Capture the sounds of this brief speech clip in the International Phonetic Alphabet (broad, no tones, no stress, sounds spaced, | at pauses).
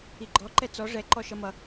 i ɡ͡ǃ ɔ ǃ ɛ t͡s ɔ ʐ ɛ ǃ ɔ ʃ ʌ m ʌ